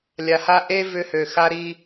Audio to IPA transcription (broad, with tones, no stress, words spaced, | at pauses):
lʲa˨ha˦ ʔe˦ vʏ˦hø˨ xa˦ɾi˦